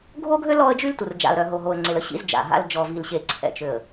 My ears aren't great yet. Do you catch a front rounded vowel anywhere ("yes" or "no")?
yes